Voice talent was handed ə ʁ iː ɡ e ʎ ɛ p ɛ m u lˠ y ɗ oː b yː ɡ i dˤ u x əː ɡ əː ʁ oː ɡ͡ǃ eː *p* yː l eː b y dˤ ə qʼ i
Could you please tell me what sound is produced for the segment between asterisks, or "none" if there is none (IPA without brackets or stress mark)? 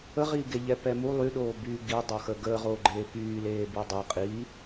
p